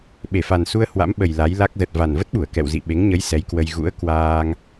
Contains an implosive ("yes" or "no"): yes